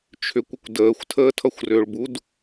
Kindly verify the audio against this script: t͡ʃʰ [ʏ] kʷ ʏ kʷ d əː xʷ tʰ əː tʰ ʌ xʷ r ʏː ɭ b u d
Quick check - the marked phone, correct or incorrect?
correct